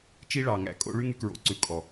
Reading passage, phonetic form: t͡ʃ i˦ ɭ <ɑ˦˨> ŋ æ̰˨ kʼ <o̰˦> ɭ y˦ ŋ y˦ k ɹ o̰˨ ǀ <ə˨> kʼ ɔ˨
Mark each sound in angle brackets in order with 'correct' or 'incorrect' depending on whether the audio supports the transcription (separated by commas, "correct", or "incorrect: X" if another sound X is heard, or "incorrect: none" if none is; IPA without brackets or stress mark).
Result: incorrect: ɑ˨, correct, incorrect: ʉ˨